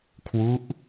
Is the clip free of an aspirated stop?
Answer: no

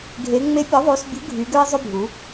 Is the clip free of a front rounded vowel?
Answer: no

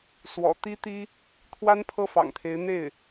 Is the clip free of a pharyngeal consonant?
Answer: yes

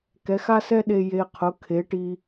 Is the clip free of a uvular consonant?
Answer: no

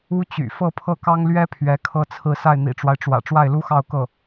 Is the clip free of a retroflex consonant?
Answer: no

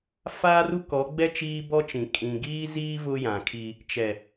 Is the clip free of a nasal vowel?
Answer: no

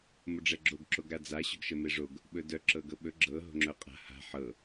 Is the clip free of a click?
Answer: no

